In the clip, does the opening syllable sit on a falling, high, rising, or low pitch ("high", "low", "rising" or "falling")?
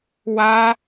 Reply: high